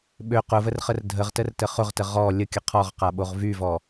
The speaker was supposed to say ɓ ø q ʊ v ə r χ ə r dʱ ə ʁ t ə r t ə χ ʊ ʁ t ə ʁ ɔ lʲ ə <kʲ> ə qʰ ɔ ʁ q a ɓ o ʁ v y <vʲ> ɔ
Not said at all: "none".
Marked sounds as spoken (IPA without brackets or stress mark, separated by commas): kʲ, v